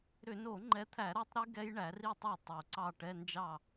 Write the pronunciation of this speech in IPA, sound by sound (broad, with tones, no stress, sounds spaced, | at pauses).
ɾ ʏ˧˩˧ n o˧˩˧ ŋ͡ǃ ɛ˨˦ t̪ʰ æ˧˩˧ ɾ ɔ˦˥ tˤ ɾ i˦˥ ɡ ɛ˦˥ j ɳ æ˨˦ r i˥˨ tˤ o˥˨ tˤ o˧˩˧ ǀ ɑ˥˨ ʈ ɛ˧˥˧ n d͡ʒ ɑ˥˨